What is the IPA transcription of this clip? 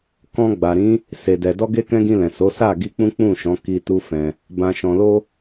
k ɔ̃˧ ɡ͡b a˨ ɾ ĩ˨˦ | s e˨ d ɛ˨ d ɔ˧ ɡ e˧ k ɛ̃˧ ɡ ĩ˧ l ɛ̃˨ s o˨˦ s a˦˨ ɡ i˧ k͡p ũ˦ k͡p ũ˦˨ ʃ ɔ̃˨˦ k i˧ t u˦ f ɛ̃˧ | b ã˨ ʃ ɔ̃˨ l o˧

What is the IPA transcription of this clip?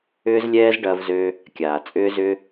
ʏː˧ z lʲ ɛː˧ z ɖ ɐː˧ v z ø˧ | kʲ aː˩ t͡sʼ ʏː˧ z ʏ˧

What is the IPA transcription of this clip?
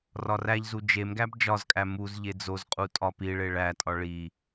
r ɒ r æ ʎ z u d͡ʒ e m ɡ æ b d͡ʒ ɒ z kʼ æ m u z ʎ e d͡z o z qʼ u tʼ ɒ p i ɭ e ɭ æ tʼ ɒ ɭ i

